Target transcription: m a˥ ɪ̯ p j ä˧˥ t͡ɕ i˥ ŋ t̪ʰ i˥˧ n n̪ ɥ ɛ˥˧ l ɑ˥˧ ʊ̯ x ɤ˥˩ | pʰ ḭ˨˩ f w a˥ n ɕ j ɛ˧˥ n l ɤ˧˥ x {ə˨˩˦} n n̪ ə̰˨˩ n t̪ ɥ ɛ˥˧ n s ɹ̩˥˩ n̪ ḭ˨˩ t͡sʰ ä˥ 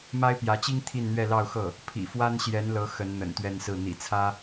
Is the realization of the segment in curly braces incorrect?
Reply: yes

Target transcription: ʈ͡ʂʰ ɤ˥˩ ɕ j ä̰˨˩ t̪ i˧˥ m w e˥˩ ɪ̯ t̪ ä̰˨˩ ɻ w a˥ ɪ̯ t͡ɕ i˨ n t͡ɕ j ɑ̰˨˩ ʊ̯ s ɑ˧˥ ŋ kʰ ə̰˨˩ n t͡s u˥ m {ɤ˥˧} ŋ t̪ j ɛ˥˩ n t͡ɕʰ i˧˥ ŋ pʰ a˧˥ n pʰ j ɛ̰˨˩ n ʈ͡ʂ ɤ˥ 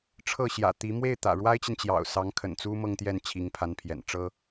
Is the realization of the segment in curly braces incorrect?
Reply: no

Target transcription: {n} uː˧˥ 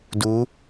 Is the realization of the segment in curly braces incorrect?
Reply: yes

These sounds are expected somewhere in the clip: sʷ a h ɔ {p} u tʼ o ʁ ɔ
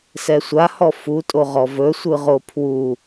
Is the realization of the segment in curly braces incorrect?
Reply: yes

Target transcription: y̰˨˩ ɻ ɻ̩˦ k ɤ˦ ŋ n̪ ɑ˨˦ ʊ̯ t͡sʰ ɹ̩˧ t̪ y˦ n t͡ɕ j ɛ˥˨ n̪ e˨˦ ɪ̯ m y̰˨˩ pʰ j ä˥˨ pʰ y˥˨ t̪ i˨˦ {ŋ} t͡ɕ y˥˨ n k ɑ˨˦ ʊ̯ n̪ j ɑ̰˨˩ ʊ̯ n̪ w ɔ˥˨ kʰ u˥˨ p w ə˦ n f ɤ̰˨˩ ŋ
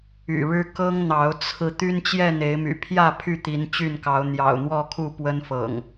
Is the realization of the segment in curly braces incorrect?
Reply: yes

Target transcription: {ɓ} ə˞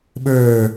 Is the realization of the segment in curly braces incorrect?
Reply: no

